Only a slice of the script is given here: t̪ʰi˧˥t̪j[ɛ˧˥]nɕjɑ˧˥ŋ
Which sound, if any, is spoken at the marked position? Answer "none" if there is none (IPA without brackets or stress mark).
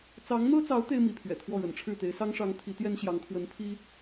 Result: ɛ˥